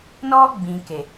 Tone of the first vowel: high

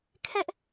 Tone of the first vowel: high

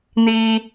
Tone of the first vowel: low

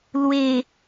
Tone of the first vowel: low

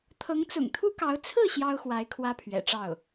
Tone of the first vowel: rising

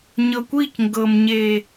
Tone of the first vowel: low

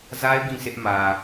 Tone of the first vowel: high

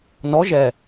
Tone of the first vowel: rising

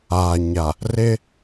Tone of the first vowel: low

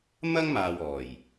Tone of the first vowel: high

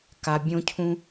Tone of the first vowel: low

